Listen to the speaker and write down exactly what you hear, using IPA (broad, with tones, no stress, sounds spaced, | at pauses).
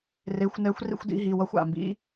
r e˨˦ xʷ n ɛ˨˦ xʷ r ḭ˦ xʷ d ḭ˦ ɦ i˩˧˩ w ʌ˦ xʷ a̰˩ m b ḭ˨˦